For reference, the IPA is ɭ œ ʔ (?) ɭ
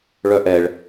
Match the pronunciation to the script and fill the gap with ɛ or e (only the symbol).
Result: ɛ